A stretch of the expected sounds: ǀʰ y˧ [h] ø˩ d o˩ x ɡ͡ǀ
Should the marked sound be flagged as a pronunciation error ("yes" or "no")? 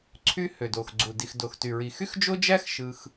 no